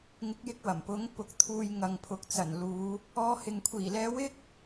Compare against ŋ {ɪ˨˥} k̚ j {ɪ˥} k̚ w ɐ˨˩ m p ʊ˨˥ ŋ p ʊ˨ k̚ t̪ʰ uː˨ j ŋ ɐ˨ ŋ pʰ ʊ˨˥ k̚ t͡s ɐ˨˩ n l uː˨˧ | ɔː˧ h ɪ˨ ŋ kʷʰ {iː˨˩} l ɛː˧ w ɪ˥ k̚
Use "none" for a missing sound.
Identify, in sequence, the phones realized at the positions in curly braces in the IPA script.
ɪ˨˥, ɪ˧, iː˨˩

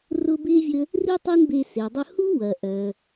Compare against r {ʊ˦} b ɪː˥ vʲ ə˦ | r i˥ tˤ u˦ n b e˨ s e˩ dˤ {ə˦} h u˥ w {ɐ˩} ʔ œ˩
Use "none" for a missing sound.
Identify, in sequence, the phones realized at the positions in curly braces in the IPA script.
ʊ˦, ʊ˦, ɐ˩

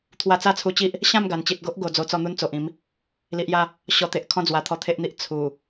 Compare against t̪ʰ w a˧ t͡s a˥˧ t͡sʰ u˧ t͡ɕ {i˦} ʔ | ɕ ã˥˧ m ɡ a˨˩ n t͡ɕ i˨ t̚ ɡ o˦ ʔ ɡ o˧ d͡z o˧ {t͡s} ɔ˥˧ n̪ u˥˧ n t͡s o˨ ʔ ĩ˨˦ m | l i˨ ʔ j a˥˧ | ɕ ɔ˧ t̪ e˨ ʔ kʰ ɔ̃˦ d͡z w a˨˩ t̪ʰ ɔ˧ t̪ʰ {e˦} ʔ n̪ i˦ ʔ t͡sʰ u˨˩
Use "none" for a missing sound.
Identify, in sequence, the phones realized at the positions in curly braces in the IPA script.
i˦, t͡s, e˦

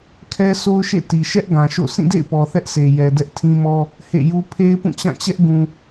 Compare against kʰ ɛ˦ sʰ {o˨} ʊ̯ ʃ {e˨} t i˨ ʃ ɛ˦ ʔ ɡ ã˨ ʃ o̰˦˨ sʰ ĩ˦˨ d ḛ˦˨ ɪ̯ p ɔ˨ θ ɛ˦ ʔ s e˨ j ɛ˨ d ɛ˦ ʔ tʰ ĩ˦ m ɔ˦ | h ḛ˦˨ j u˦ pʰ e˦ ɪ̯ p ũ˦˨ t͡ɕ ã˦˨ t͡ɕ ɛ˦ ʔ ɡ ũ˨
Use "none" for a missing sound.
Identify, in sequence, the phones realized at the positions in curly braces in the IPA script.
o˦, ḛ˦˨

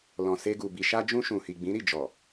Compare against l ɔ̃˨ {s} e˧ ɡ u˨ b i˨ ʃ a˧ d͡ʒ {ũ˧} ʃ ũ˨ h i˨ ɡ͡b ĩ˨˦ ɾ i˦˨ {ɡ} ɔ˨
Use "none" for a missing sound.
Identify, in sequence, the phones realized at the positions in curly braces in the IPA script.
s, ũ˧, d͡ʒ

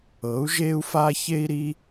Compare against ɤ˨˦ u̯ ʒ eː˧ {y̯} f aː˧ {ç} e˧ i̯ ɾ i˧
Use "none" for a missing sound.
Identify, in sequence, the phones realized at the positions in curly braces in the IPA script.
u̯, ç

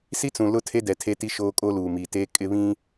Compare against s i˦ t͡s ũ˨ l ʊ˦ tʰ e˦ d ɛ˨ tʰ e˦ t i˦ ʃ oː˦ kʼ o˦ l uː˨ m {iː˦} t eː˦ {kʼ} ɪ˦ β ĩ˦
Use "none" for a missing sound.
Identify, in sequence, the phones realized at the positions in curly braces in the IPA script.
iː˨, kʼ

